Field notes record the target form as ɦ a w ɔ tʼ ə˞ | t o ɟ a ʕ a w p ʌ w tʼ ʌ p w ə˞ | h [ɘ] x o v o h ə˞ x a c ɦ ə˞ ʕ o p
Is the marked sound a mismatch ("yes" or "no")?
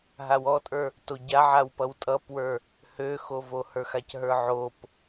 yes